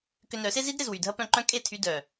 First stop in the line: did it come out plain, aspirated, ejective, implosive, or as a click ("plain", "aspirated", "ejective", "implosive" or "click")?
plain